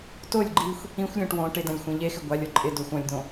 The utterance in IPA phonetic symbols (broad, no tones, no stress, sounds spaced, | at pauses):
t o lʲ ɡ͡ǃ i xʷ | ĩ xʷ lʲ õ ʈ w õ ʈ ɪ d ã lʲ xʷ ẽ ʎ e x ɪ ɡʷ a lʲ ɔ ǃʼ ɪ d o xʷ ɔ̃ lʲ d õ